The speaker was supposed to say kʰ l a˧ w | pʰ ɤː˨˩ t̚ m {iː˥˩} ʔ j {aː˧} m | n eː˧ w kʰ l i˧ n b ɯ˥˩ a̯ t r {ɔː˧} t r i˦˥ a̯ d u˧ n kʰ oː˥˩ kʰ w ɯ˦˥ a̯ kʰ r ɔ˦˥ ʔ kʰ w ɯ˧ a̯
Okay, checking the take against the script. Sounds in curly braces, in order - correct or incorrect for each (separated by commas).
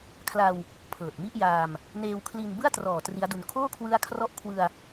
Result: incorrect, correct, incorrect